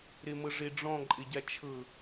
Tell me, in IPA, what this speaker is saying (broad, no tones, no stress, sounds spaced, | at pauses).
ɾ e m ɤ ʐ e ɖ͡ʐ ɔ̃ ǃʼ e ɟ a t͡ʃʰ ɤ